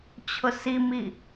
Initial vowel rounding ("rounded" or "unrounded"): rounded